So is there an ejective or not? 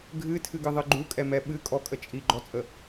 yes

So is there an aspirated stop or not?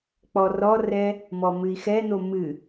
no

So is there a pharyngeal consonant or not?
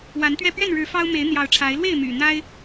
no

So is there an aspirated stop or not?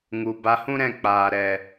no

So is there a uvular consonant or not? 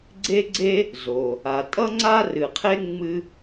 yes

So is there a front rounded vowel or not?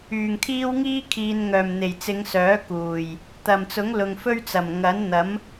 yes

